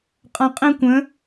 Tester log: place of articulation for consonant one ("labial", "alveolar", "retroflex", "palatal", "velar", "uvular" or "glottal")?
uvular